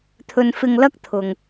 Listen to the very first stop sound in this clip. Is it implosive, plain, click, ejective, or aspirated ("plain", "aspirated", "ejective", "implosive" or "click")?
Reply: aspirated